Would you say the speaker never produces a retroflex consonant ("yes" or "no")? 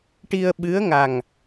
no